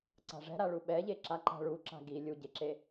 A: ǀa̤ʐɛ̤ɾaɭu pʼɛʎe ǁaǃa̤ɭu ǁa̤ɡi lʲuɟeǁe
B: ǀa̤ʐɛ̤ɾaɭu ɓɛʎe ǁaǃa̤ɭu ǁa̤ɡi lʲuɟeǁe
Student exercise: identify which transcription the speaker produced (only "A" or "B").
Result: B